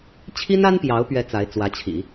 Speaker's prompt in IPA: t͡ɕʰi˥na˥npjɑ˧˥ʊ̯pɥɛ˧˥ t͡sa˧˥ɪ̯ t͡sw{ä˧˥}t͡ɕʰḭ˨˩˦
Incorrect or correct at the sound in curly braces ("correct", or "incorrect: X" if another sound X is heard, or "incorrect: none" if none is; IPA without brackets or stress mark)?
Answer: correct